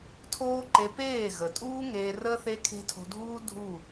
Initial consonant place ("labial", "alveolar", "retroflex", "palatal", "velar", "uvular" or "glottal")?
alveolar